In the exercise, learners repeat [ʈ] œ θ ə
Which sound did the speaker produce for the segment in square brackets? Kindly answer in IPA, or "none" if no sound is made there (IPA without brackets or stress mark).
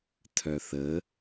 tʰ